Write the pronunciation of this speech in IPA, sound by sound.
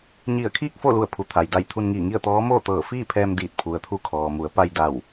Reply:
ɲ i˧˩ ə̯ kʰ iː˥˨ k̚ f o˥˨ l u˧˩ ə̯ pʰ u˩˧ t̪ʰ a˩ j d a˧˩ j t̪ʰ u˧ n ŋ iː˧˩ ŋ i˥˨ ə̯ t̪ ɔː˧˥ m oː˥˨ t̪ ɤː˧˩ f iː˥˨ pʰ ɛː˧ m d iː˧˩ t̚ pʰ u˩ ə̯ t̪ʰ u˧ kʰ ɔː˩ m u˩˧ ə̯ p a˧ j d a˧˩ w

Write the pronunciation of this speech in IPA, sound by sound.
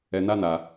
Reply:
ɛ˧ n a˦ n a˧

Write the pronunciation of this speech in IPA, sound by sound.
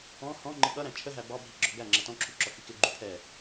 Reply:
ɔ̃ h ɔ̃ ŋ͡ǃ ɪ ɠ ʌ ɾ æ̃ t͡ʃʰ ə ɦ æ b ɑ bʱ i ɡ͡ǁ ɔ ɡ æ ŋ͡ǁ ʌ t ɔ̃ ǁʰ u ǁ ɔ k i k ɪ ɡ͡ǃ u pʰ ɛ

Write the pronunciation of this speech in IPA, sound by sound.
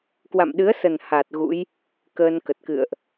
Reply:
k w a̰˧˨ m ɗ ɨ˨˦ ə̯ s ə˨˩ n h a˨˩ t̚ ɣ ṵ˧˥ j | k əː˧ n k ə˨˩ t̚ k ɨ̰˧˨ ə̯ ʔ

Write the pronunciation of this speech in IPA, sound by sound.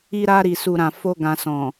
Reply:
i˧ ɾ a˧ ɾ i˨ s u˨ ɾ ã˨ f o˧ ɡ ã˨ s ɔ̃˨

